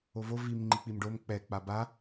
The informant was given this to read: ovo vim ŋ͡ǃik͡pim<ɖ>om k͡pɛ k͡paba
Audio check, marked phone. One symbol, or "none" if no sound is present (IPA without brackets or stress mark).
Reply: ɖ